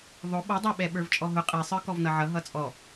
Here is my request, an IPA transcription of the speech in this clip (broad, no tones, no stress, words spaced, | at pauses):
ðˤʊ ɓʌdˤɑɓɛ ɓə˞vt͡ʃʼɔɦʊ qʼisˤə˞ kɔvnʌʕʌ ɦʌt͡sʼɔ